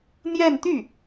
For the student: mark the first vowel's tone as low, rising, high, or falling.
falling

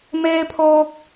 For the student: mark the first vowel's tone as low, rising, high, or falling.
high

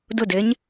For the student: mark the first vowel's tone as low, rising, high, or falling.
falling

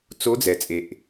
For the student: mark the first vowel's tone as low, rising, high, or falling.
rising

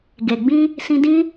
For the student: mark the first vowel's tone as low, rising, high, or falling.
low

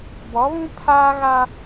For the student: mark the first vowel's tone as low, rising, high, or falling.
rising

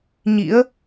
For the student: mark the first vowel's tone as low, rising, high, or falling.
rising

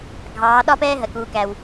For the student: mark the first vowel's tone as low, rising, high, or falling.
rising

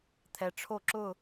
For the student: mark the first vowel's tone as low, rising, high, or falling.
low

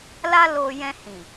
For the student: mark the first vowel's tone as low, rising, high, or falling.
high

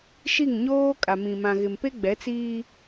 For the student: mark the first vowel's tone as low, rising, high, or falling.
falling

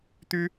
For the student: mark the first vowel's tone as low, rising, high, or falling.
high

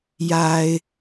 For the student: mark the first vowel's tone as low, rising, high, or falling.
low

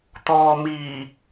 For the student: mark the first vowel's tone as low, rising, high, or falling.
low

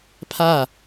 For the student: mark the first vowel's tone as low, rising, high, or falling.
falling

